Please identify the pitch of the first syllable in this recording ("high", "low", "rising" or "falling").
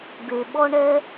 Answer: low